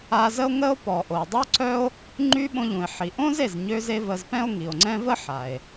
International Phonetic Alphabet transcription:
a˧zə˥o̯ŋə˥o̯ pɔ˩ʔo˩ dˤo˥ǀœ˥o̯ | ŋ͡ǃy˧ ɓõ˧ʎũ˩e̯ ħi˩ʔõ˥z e˩zɲø˧ze˧ və˧zpɛ̃˥o̯ŋi˩o̯ŋ͡ǀɛ̃˥ və˥ħa˩e̯

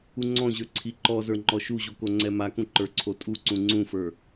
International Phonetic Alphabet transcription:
uŋ͡ǀɔ̃ʑə˞ ǀʰiǃɔzə˞ ŋ͡ǃɔʃuʑo koŋ͡ǀɛmakũ ǃə˞ǀʰotʼuǀũ ŋ͡ǀũfə˞

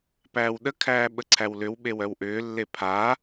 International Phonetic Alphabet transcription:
pæːwɗəkʰæː ɓəǀʰæwlʏwɓew œwʔʏːlːe pʰa

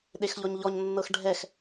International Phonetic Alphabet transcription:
ɗexʎɔɲʎɔɲnːɤx ɖʱɛx

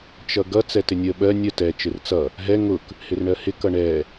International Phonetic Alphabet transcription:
t͡ʃʌɡʌ t͡sɛtɪnʲə ɓɜ nʲə tɛ t͡ʃɪrt͡sʌ | ɦɛ ŋʊk | hɪrɳɜhɪ kʌɳɛ

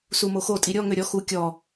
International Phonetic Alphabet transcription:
sumoxo tʼiɾʲɔ ŋøɾʲɔ xu kʲɔ

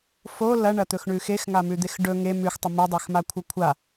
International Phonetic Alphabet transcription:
fo lɐɳɐt̪ɵxɳʉ xexŋamʉd̪ex ɖɵ ŋe mʉxtˤɵ modˤexmakʷʰɐ kʷʰa

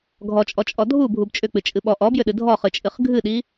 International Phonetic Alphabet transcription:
ɡʱɔt͡ʃʼɔt͡ʃʼɔ dʱubʱub t͡ʃʼʏk͡pɨt͡ʃʼɨ ɓɔ ʔɔbjʏɗɨ dʱɔχɨt͡ʃʼɨχ ɡʱɨɗi

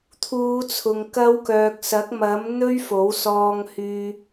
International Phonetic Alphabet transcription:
t̪ʰuː˨˧t͡sʰʊ˨ŋ kɐ˧wkœː˨k̚sɐ˨˥k̚ mɐ˨˥m n̪ɵ˥ɥfo˨˥wsɔː˧ŋhyː˧

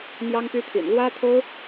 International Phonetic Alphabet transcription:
mjɑ˥ŋpy˥t̪ʰḭ˨˩n lwä˥t̪ʰo˥ʊ̯

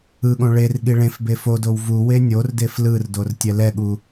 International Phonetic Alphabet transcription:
ɯɠõ ɭerɠi ɭẽfbe fodow vu wenʲordef lɯrdor tʲɛlɛɠu

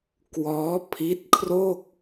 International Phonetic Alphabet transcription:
kwɔː˦˥ pʰi˦˥t̚kʰro˥˩k̚

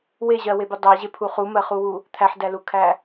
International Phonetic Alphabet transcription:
weʑɜwebu dˤɜi̯ʑepʰu χumɜχuwu | t̪ʰæħdælukʰæ

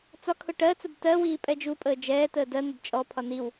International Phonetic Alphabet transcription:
t͡sɒkʰʊ ʈɜt͡səb tɜwiː pʼɛd͡ʒupʼəː d͡ʒɛːtəː dɜn̪əb t͡ʃʼɔpʰɒ niw

